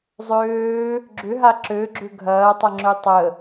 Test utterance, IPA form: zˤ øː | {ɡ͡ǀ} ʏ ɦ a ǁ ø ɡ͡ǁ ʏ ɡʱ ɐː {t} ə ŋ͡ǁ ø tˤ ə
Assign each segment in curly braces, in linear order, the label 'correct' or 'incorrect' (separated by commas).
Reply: incorrect, incorrect